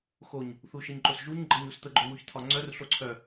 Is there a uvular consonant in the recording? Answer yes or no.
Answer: no